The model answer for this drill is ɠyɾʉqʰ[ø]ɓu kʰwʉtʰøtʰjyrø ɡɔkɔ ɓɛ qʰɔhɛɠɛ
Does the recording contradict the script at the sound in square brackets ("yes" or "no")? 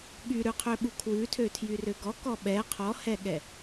no